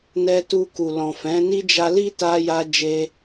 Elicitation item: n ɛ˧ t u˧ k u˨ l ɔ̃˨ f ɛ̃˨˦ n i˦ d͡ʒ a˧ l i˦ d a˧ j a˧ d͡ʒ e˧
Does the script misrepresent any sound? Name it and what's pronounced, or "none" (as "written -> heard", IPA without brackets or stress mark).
d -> t